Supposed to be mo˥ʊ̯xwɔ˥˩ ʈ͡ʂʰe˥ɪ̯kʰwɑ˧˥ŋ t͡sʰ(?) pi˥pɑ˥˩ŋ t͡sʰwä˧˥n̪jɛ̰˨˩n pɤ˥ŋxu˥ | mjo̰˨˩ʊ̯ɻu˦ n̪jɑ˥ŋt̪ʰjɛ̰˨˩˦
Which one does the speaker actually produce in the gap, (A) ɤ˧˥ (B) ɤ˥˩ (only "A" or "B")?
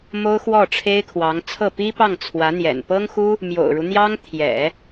B